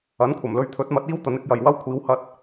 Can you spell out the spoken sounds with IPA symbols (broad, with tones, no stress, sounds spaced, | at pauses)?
ɐ˨˥ n kʷʰ ɐ˨˩ m l ɵ˧ ɥ t̪ʰ ɵ˨˥ t̚ m ɐ˨˥ t̚ iː˥ w t̪ ɐ˨˥ n ɪ˨˥ k̚ j ɐ˨ j w ɐ˥ w kʷʰ iː˨˧ w h ɐ˧ t̚